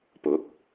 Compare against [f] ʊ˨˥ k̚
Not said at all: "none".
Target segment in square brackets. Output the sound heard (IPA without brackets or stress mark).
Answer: p